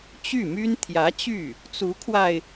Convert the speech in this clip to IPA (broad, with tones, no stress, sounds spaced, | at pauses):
t͡ɕ y˥˩ m y˥ n t̪ʰ j ä˧˥ t͡ɕ y˥˩ | t͡s u˧˥ kʰ w a˧ ɪ̯